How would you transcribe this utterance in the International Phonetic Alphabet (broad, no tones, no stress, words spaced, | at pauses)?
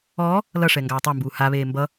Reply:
ɔː | lʌʂɛ ŋɡaːtˤambuː haβeː mbʌ